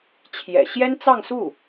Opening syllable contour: low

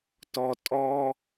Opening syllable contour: low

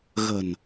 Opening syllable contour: low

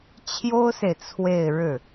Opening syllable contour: high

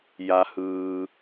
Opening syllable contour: low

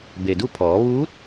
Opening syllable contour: low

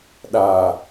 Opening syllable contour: low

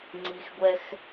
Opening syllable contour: low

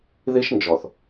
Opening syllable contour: high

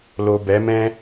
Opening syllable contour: low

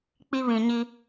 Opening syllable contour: high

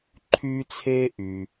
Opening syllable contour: high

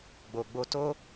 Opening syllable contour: low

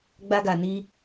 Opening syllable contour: high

